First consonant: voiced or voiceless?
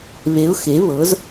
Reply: voiced